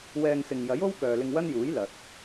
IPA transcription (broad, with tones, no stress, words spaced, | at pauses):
wɛː˧ŋsɪ˨ŋ jɐ˨˥jo˥w kœː˨lɪ˧ŋwɐ˥njuː˨˥j lɐ˨t̚